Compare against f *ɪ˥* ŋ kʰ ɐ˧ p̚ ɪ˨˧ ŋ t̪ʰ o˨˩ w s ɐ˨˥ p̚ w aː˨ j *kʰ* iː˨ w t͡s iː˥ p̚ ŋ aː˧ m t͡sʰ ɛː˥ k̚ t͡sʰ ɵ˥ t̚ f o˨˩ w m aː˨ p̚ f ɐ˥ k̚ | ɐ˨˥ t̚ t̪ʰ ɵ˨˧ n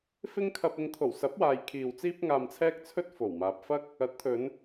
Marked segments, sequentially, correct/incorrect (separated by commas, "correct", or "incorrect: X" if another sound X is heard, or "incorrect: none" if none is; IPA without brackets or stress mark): correct, correct